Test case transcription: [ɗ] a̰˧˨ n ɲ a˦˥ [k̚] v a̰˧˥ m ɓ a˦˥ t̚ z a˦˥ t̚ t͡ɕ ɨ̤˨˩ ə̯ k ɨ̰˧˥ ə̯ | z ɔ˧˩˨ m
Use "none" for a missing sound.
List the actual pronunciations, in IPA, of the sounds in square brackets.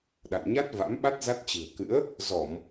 ɗ, t̚

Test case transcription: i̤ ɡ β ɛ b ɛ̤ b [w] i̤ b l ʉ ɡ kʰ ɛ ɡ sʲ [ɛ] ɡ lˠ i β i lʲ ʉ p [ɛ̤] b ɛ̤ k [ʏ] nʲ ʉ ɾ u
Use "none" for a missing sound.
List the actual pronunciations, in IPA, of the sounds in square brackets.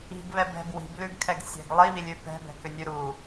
w, ɛ̤, ɛ̤, ʏ

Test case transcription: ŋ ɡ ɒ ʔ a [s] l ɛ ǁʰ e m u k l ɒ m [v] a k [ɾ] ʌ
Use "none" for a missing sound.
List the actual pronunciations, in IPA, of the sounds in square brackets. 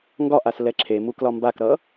s, b, ɾ

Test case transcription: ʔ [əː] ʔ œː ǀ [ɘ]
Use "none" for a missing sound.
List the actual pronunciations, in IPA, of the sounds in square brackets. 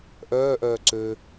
œː, ø

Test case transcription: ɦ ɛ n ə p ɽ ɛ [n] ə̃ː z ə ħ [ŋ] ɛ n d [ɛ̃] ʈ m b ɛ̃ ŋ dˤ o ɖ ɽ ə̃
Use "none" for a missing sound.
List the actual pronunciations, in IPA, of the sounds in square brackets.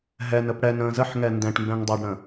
n, ŋ, ɛ̃

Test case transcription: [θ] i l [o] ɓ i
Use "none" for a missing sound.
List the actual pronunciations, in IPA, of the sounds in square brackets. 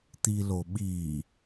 t̪, o

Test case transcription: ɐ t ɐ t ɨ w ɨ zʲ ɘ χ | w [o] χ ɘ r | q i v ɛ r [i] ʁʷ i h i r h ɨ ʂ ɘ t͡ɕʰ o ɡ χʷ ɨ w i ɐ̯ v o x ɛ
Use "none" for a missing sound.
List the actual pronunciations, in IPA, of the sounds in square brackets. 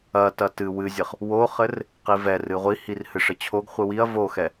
o, ɨ

